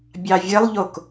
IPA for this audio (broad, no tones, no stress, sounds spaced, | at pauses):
bʲ ɑ vʲ ɘ lˠ ʎ o k